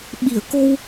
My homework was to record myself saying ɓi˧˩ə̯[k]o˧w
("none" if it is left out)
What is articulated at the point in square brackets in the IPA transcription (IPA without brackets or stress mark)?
k